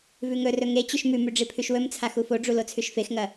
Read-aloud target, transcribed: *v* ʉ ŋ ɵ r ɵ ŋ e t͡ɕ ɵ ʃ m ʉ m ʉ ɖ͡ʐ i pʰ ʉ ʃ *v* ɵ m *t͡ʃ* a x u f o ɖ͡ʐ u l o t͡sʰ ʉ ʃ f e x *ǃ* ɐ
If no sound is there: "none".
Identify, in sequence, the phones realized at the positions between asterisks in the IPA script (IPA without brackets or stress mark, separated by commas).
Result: v, w, t͡sʰ, ŋ